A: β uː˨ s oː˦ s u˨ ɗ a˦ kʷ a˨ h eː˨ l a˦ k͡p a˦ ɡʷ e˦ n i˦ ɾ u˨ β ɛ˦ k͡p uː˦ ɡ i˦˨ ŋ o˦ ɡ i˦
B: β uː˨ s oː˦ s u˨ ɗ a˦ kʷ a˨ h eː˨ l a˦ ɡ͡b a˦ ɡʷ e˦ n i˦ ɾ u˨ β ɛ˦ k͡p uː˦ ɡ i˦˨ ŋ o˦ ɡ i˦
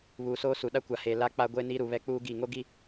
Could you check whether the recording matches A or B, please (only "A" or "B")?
A